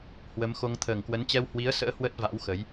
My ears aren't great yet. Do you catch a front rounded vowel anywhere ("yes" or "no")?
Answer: no